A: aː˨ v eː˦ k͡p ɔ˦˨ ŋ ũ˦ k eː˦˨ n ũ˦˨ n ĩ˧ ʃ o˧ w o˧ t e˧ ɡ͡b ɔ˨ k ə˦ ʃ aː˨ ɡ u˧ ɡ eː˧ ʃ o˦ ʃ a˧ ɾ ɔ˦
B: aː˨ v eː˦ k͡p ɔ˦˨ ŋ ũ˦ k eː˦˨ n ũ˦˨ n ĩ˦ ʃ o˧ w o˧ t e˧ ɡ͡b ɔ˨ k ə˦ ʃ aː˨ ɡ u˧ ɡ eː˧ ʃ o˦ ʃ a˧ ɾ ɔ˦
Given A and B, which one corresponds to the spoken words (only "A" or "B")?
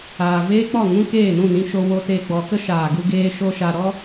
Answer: A